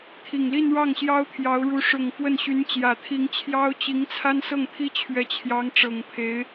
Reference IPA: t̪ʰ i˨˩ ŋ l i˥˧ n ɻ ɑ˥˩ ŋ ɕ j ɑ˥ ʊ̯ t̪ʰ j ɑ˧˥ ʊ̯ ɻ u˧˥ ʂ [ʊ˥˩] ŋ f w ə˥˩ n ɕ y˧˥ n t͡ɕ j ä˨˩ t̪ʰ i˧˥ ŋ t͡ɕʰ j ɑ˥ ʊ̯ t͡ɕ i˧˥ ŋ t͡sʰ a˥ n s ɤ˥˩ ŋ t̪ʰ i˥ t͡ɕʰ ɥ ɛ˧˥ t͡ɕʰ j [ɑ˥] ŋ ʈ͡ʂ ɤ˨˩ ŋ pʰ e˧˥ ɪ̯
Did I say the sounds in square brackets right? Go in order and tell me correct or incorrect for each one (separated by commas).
incorrect, incorrect